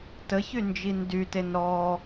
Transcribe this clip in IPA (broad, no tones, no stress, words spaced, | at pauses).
təçy nd͡ʒindyten ɾɔ